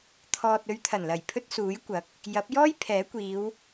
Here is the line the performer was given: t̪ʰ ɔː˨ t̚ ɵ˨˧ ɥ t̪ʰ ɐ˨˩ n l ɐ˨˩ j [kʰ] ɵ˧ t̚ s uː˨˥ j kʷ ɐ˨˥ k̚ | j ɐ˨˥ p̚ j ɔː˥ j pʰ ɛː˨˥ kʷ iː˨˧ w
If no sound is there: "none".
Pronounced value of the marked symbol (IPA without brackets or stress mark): pʰ